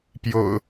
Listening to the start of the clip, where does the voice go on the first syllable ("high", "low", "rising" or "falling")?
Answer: low